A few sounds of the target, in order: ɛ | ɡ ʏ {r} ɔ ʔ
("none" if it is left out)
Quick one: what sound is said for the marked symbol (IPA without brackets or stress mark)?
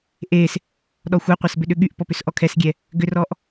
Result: r